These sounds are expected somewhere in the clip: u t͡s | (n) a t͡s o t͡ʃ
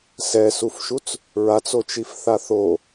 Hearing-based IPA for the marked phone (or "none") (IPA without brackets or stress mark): ɹ